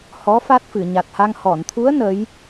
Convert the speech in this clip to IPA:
hɔ˧˥ fa˦˥t̚fɨ˨˩˨ ɲa˨˩t̚ha˧ŋ hɔ˨˩˨nt̪ʰu˧˥ə̯ nə˧˥j

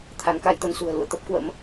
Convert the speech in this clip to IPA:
t̪ʰa˨˦nka˧jt̪ə˧nsṳ˨˩ə̯ lṵ˧˨ə̯t̪ə˦˥p̚ kwə̰˧˥m

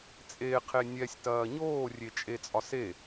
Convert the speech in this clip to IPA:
t͡sʼeqʰe nʲɛsʲtɐː ɲoːrʲet͡ʃʼet͡sʼɒ se

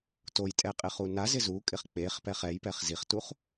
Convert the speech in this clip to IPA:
tojtʼɛqʼɪχu nazɪ zukʼɪχ k͡peχpɛχ ɛjpɛχ ziχtuχ

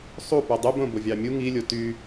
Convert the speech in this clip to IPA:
sˤu pydˤybõ bovʲɑmʲu ŋilʲo ty

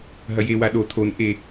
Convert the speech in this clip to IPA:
ɦɐjewa ɗo tʰonʔe

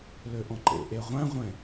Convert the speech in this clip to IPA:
løʔɔ̃ǃḛ ʔeʁʷæ̃ʁʷɛ̃

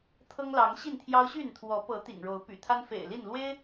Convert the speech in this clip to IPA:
t̪ʰɤ˦ŋlɑ˨˦ŋɕi˥˨nt̪ʰjɑ˦ʊ̯ ɕy˥˨nt̪ʰwɔ˨˦ pɤ˨˦ t̪ḭ˨˩ŋɻo˨˦ʊ̯ py̰˨˩t̪ʰa˦nfḛ˨˩ɪ̯li˥˨n lwe˦ɪ̯

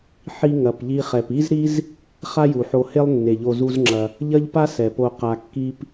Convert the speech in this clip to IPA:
ħi˧ ŋɐ˨pʎi˧χɛ˨p i˦zɾi˦z | χa˦ju˨ħo˧he˦lˠ nːe˨ʎo˧zu˦zŋ͡ǁɐ˧ | ʎɐ˦ʎpa˦ sɛ˨po˧ qa˧kːi˦p

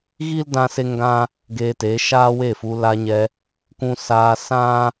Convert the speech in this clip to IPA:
ɣi˦ldã˧ se˦ŋɡã˦ | ɡeː˧te˨˦ ʃaː˦we˦˨fu˧ la˧ɲɛ˧ | kũ˧saː˧ sã˦

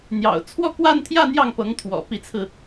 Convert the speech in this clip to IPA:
n̪jɑ̰˨˩ʊ̯ t͡sʰwɔ˥˧kwa˥˧nt̪ʰjä˥˧ n̪jɑ˥˩ŋpɤ˧˥ŋt̪ʰwɔ̰˨˩ pi˧˥t͡sʰɹ̩˧

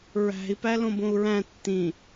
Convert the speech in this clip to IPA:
ɹæ̤i̯pæ lõbõu̯ɹæ̃ tːĩ

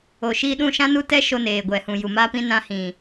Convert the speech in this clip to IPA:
o˨ʃiː˧ɗũ˦˨ ʃã˦nu˦tɛ˦ʃo˧ neː˨ɡʷɛ˨hũ˨ju˨ ma˧pĩ˧ nã˧hĩ˨

